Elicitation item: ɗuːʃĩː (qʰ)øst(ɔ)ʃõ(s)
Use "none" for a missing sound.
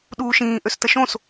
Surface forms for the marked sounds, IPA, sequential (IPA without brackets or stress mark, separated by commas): ʔ, ə, s